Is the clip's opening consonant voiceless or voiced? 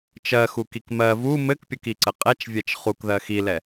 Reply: voiceless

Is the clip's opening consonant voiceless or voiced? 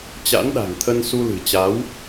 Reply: voiceless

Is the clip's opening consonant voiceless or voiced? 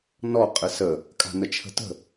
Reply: voiced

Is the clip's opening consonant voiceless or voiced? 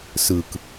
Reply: voiceless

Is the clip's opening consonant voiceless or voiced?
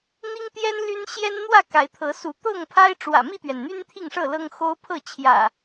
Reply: voiced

